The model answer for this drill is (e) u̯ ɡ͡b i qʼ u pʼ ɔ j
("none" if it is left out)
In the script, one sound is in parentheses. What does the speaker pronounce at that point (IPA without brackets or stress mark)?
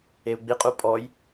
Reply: e